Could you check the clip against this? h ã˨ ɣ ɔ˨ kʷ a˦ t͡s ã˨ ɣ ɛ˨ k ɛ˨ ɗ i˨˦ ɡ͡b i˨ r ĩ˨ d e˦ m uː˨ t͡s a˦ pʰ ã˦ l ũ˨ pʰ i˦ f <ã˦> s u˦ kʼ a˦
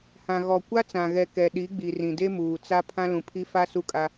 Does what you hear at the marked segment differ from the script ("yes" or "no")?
yes